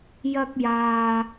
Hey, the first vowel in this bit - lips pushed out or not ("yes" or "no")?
no